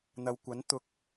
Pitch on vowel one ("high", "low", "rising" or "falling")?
low